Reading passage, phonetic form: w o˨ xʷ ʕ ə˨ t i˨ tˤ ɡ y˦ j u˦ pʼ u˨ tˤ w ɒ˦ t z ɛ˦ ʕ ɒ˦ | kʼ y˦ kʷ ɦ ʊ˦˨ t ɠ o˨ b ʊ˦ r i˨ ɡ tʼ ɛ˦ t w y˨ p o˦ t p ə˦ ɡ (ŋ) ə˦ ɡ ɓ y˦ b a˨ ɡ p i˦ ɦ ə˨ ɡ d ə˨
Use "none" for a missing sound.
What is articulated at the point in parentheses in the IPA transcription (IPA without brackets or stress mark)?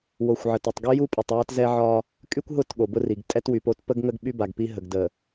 ŋ